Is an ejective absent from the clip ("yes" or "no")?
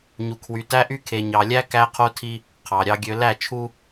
yes